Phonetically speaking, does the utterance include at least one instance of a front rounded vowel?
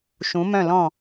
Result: yes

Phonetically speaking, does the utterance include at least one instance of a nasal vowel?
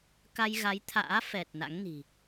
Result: no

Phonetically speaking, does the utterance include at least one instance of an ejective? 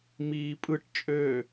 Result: yes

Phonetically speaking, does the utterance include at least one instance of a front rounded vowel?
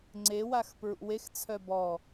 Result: yes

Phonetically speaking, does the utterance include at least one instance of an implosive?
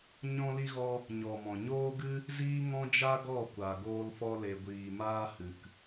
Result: no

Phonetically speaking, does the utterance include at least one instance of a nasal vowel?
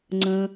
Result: yes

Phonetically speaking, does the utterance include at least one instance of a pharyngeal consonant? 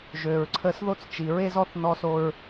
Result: no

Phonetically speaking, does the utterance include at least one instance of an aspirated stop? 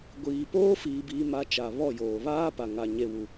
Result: no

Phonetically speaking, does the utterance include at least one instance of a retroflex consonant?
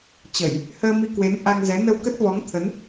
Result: no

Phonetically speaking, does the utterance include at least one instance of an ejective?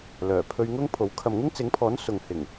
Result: no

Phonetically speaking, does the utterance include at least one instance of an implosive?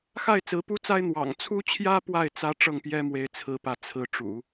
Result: no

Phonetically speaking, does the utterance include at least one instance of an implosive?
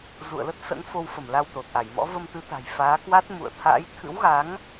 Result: no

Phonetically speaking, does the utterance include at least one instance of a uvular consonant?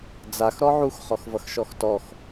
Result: yes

